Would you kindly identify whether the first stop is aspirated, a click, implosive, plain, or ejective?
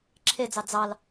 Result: click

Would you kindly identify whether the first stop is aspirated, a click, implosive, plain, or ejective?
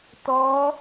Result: plain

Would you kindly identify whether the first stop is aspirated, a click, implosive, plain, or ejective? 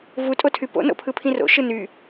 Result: ejective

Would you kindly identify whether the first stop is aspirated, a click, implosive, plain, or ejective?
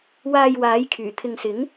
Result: aspirated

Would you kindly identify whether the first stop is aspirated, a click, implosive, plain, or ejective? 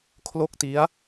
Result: aspirated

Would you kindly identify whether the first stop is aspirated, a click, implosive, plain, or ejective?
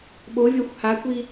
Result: implosive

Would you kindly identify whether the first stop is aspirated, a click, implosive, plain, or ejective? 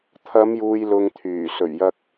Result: aspirated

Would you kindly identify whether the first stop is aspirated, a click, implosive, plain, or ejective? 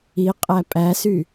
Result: ejective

